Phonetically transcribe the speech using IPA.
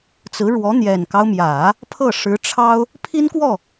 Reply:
t͡s ɹ̩˧˥ ɻ w ɔ˧˥ n̪ j ɛ˨˩ n k ɑ˦ ʊ̯ m j ä˨˩˦ | pʰ ɤ˥˩ ʂ ɻ̩˧˥ ʈ͡ʂʰ ɑ˥ ʊ̯ | pʰ i˥ n k w ɔ˥˩

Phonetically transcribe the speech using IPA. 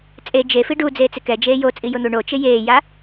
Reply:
t͡sʼ e d͡ʒ e f i ɖ u d͡z eː t͡s ɪ k ɛ d͡ʒ eː j o t͡sʼ i j ʊ n̪ u ɳ o t͡ʃ ɪ j eː j a

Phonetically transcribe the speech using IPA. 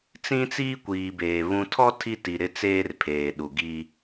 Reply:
t͡s ĩ˦ t͡s iː˦ kʷ iː˨ b eː˨ β ũ˨ tʰ ɔ˦ tʰ i˦ t i˨ ɾ ɪ˦ t͡s eː˦ r pʰ eː˨ ɗ u˨ ɡ i˦

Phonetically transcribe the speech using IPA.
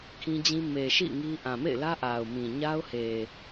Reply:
kʰ ĩ˦ d͡ʑ ĩ˦ m e˨ ʃ ḭ˦˨ ŋ i˦ ʔ ã˨ m ḛ˦˨ ɪ̯ l ä˦ ʔ a˨ ʊ̯ m ĩ˨ ɲ a˦ ʊ̯ h e˨

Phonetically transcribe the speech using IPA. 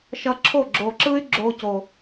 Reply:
ʃ ʌ˧ ǁʰ o˦˨ ɡ͡ǁ o˨ ǁ ɯ˦ y̯ ɡ͡ǁ o˧ c o˨

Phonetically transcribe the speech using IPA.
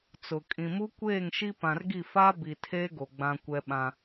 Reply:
t͡s ʊ˨ kʼ ĩ˨ m u˦ kʷ eː˦˨ ŋ ʃ i˦ p ã˨ r ɡ i˦˨ f a˦ b i˨ tʰ eː˦ ɡ o˨ ɡ͡b ã˦ kʷ ɛ˦ ɓ ã˦

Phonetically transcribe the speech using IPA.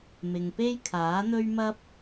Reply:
m ɪ˨ ŋ p e˥ j kʰ aː˨˥ n̪ ɵ˥ ɥ m ɐ˥ p̚

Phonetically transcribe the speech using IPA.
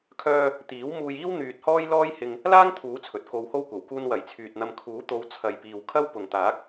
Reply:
kʰ œː˧ | t̪ iː˨˥ w m uː˧ j iː˥ w n̪ yː˧ t̚ h ɔː˥ j l ɔː˥ j h ɪ˧ ŋ | l aː˥ ŋ t̪ʰ uː˨˥ t͡sʰ ɵ˨ t̚ k o˧ w h o˥ w kʷ ɐ˨˩ w k uː˧ n w ɐ˨˩ j t͡sʰ yː˨ t̚ n̪ ɐ˧ m kʰ uː˨˥ t̪ o˨˧ w t͡sʰ ɐ˨ j p iː˨ w kʰ ɐ˥ w p ʊ˨ ŋ t̪ aː˨˥ k̚

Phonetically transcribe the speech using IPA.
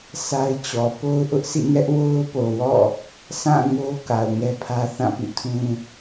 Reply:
sʰ a˦ ɪ̯ t͡ɕ ɔ˨ p o˦ ʊ̯ ʔ ʊ˦ ʔ sʰ ḭ˦˨ ŋ ɛ˦ ʔ w o˦ ʊ̯ p o˨ w ɔ̰˦˨ | s ã˦˨ ŋ o˦ k a˨ ʊ̯ ŋ ɛ˦ pʰ ä˦ θ ã˦˨ p ḭ˦˨ tʰ ũ˦

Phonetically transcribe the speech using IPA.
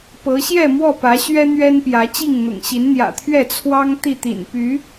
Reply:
p ɤ˨˦ ɕ j ɛ˥˨ m w ɔ˥˨ p ä˨˦ ɕ ɥ ɛ˦ n̪ ɥ ɛ˦ n p j ä˨˦ t͡ɕ i˥˨ ŋ n̪ ʊ̰˨˩ ŋ ɕ i˨˦ n n̪ j ä̰˨˩ t̪ʰ ɥ ɛ˥˨ t͡sʰ w ɑ˦ ŋ t̪ i˥˨ t̪ ḭ˨˩ n p y˨˦

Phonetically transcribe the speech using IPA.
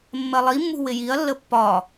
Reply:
mː ɜ lˠ i mː ṳ w ɪ j i ɐ̯ lː ə pː ɒ

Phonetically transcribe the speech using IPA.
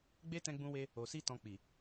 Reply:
ɡ͡b e˦ t ɛ̃˧ ɡ͡b ũ˧ w e˧ | o˨ s i˧ t ɔ̃˧ k͡p i˨

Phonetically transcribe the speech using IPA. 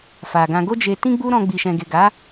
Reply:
f a˨ ɡ ã˧ ɡ o˦ d͡ʒ e˧ t ĩ˦ ɡ͡b u˦ ɾ ɔ̃˧ ɡ͡b i˨ ʃ ɛ̃˨ ɡ e˨ ɡ a˨˦

